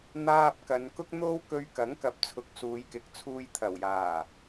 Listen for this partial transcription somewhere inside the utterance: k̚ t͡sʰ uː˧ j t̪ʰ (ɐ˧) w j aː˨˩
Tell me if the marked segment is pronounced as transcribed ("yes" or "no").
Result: no